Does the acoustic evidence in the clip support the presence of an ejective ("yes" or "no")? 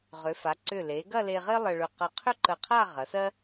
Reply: no